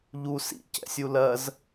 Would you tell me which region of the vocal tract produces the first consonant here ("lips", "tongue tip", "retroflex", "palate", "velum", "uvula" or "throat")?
palate